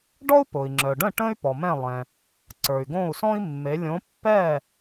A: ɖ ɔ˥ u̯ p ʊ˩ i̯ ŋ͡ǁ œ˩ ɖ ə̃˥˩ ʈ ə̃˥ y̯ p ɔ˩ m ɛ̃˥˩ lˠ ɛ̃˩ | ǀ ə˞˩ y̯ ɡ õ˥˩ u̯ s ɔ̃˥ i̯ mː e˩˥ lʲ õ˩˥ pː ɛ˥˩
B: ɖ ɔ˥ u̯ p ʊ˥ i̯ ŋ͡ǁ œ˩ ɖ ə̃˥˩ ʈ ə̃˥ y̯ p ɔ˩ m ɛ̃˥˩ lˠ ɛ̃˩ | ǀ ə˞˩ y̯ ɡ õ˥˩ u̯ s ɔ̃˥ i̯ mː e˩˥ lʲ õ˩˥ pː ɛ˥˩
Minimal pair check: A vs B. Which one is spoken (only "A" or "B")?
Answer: A